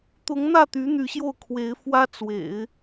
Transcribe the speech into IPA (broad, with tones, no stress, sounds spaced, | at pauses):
t̪ ʊ˧˥ ŋ n̪ ä˥˩ t̪ y˧˥ n̪ y˧˥ ɕ j o˥˩ ʊ̯ kʰ w e˧˥ ɪ̯ f w ä˥ t͡s w ḛ˨˩˦ ɪ̯